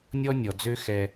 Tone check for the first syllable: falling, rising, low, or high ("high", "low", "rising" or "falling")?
high